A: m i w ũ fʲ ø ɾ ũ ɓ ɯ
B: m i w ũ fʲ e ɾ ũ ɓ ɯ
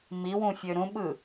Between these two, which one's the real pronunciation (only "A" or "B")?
A